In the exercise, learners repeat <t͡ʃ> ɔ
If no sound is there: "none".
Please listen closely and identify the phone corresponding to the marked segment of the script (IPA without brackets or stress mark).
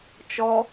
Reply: t͡ʃ